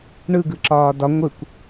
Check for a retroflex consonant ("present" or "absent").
present